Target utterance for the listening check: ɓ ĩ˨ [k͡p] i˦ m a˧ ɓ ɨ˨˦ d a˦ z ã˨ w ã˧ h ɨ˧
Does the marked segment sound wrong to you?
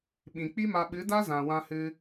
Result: no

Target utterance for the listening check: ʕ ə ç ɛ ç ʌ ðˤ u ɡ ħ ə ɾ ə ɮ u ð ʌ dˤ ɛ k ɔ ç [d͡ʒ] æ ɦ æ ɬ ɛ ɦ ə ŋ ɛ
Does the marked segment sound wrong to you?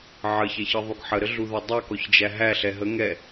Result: no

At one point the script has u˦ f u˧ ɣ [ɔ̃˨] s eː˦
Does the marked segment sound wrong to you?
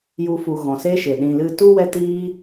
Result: no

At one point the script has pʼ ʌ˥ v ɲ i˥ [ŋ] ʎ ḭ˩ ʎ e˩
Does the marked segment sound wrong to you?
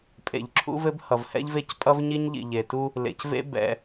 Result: yes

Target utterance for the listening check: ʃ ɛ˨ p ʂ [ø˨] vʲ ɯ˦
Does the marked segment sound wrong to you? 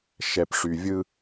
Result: yes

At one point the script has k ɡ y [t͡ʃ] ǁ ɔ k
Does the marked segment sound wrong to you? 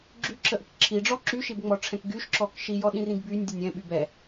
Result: yes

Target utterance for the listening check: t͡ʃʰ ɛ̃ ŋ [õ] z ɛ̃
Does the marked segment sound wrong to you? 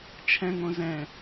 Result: no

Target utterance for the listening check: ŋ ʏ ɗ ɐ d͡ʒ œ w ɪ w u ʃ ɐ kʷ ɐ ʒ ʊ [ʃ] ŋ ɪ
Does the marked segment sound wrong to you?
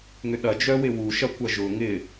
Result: yes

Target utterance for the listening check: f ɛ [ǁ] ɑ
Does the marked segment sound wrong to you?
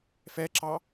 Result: no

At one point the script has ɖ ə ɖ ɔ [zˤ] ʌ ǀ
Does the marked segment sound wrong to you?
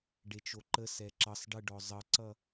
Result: no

